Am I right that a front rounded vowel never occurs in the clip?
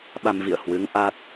yes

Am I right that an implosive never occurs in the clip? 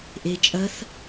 yes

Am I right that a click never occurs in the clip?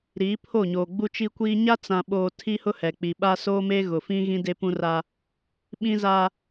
yes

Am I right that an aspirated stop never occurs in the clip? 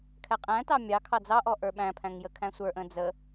no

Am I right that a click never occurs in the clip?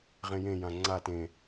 no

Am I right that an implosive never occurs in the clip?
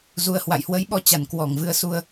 no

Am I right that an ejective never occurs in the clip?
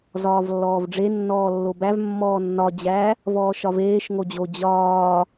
yes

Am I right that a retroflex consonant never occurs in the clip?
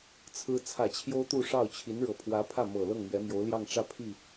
no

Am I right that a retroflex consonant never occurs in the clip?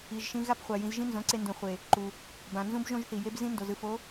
yes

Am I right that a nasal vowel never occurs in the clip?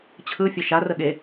yes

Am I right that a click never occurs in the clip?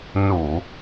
yes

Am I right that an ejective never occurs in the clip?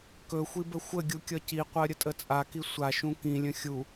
no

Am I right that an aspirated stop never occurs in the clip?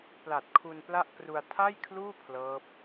no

